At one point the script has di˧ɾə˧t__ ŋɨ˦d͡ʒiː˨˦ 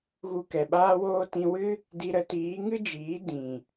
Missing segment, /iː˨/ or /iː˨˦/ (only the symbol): iː˨˦